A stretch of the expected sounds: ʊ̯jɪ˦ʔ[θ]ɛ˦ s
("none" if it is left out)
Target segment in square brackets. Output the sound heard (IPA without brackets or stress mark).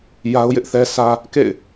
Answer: θ